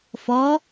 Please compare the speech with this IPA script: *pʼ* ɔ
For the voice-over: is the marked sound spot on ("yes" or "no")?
no